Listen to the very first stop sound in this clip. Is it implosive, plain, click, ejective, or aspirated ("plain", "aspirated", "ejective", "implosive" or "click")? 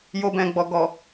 plain